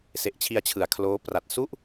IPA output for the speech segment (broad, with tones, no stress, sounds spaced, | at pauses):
s e˨˩ ʔ t͡ɕʰ i˧ a̯ t͡ɕʰ ɯ˨˩ a̯ kʰ l oː˦˥ p r a˨˩ t̚ s u˥˩ ʔ